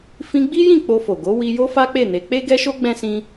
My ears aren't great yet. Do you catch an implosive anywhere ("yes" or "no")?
no